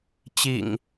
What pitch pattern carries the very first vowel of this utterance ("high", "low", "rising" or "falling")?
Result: low